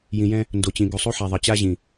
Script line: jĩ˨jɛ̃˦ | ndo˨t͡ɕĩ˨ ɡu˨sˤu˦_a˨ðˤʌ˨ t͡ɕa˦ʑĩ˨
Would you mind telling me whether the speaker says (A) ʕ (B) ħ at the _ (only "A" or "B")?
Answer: B